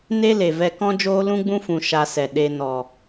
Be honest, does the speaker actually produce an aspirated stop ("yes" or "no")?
no